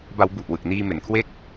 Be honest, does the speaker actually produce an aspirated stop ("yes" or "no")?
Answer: yes